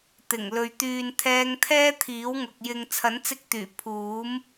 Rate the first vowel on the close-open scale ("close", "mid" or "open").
close